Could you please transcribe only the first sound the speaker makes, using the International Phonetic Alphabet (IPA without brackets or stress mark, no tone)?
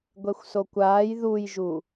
ɡʷ